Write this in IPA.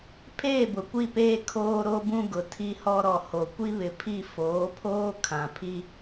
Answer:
pʰ eː˦˨ b ʊ˨ kʷ i˦˨ p eː˦ kʰ oː˦ ɾ o˦ b ũ˦ ɡ ʊ˨ tʰ i˦ h ɔ˦ ɾ ɔ˨ h o˨ kʷ i˦ β ɪ˨ pʰ i˦˨ f oː˨˦ pʰ oː˦ kʰ ã˨ pʰ i˦

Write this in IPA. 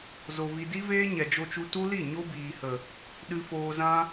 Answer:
z o˧ v i˧ d i˦ v eː˦ ɲ ɛ˨ d͡ʒ o˧ t͡ʃ u˧ t u˦ l i˦˨ ɲ o˦ b iː˨ h ə˨ | ɗ ɨ˧ f oː˧ z ã˦

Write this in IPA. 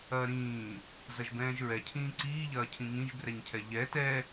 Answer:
ɐː ɾ ĩː | z ɐ ʒ b ɛ̃ː ʒ ɹ ɛ cʰ ĩː ǀ iː ʎ ɐː cʰ ĩ ŋ ĩ ʒ b r ɛ ɲ cʰ ɛ ʎ ɛ t ɛ

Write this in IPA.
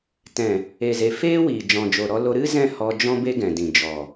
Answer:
t ɛ̃˨ | e˨ z e˨ f eː˦ w iː˨ d͡ʒ ɔ̃˨ d͡ʒ o˨ ɾ ɔ˧ l o˧ ɾ ɨ˦ z ɛ̃˦˨ h ɔ˧ d͡ʒ ɔ̃˦ b e˦ ɡ ɛ̃˨ d ĩ˨ d͡ʒ ɔ˨

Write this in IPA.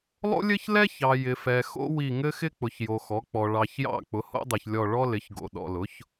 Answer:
lˠ o̰˥ lʲ ɘ˥ ç l ɛ˥ ç ɑ˨ j ɪ˨ f ɛ˨ x o̰˥ w i˦˨ ŋ ɘ˥ x ɪ˥ k͡p ʊ˨ ç j o˨ x ɔ˩˥ k͡p ɔ˨ ɭ ɑ˨ ç j ɑ̰˦˨ k͡p ʊ˩˥ h o̰˥ dˤ ɛ˨ ç lʲ ɔ˦˨ ɭ ɔ˥ l ɪ˩˥ ç ɡ o̰˨ ɗ ɔ̰˨ l ʊ˩˥ ç

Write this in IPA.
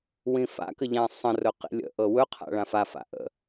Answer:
w ĩ f a̰ k ə ʎ ã sˤ ə̃ r ɵ q ḭ lʲ ə̰ ʔ ɤ w ɵ qʰ a̰ ɭ ã f a f a̰ ʔ ə̰

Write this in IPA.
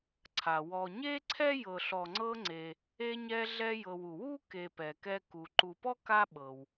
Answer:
ǀʰ a˩ w ɔ˨ ɲ e˥ ǀʰ ɛ˥ j ɤ˨ ɬ ɔ˨ ŋ͡ǀ ɤ˦ ŋ͡ǀ e˨ | e˦ ɲ ɛ˦ ɮ ɛ˦ j ɤ˨ w u˩ w u˥ k e˨ p ɛ˩ k ɛ˦ k u˨ ǃ u˨ p ɔ˥ k a˦ ɓ ɤ˩ w

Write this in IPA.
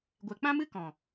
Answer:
ɡʷ ɛ˨ k͡p ã˦ m ɨ˦ k ɔ̃˨

